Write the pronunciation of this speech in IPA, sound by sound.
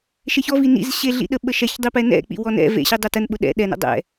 ʃeçɔ vinḭz ɕeɮḭɗə ɓəʃɛçdˤi pɛnɛ̰k͡pḭ wɔnɛ̰ vḛɕidˤɛ tənɓʊ ɗɛ̰ ɗɛnɛ̰ dˤɛ̰

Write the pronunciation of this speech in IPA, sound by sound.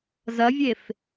zɐvʲef

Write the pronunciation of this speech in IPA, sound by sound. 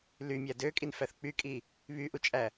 lymʲæ døkʼinfæθ k͡pykʼi | βyʔut͡ʃʼæ

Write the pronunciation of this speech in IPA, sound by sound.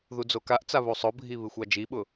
ðud͡zokaʔt͡sa βusˤʊbʱi βɨxʷɑd͡ʒiɓʊ

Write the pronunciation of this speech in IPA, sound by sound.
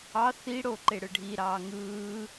ɑ θiɽo ǃeɽɯɖʱi ɾɑːŋɯː

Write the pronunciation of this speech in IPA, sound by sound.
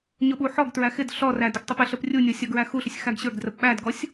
ɲʊɓuħɔɡtɹæ xɪd ɬɔræ dʊɡtˤəpɪɬəp rʲunʲɔ sʲɔɡɹæxuɬʊsʲ xæɡɕə˞ɡdrəp ɓædɡɔsʲ

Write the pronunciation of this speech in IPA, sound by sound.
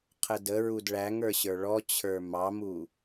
qʰədə ɹudɭæŋə˞ɕə˞ ɭɔt͡ɕʰə˞ mɑmu

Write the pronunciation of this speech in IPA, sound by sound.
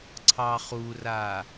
ǀʰɑχura

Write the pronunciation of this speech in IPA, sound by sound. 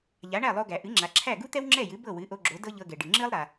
ʎa˩˥ɳæ˥˩lˠo˧ɡæ˩ ʔɨ˩˥ŋ͡ǁa˩ǁʰæ˥˩ ɡu˥t̪ɛ˥wŋ͡ǁɛ˥˩jɨ˩˥ bɤ˥˩wɨ˩˥ʔo˧ɡ͡ǁo˩˥ dɤ˥ʎɤ˧ɡɛ˩ɖɨ˩ ŋ͡ǁɨ˥lˠɾa˩

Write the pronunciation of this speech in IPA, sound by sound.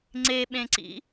ŋ͡ǀeɓẽǀḭ

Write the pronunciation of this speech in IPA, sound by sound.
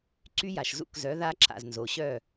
ǀy˦˥ja˨ʃzṵ˥˨k zœ˨˥ða˦˥ ǁa̰˨znzo˨ɕœ˥˨

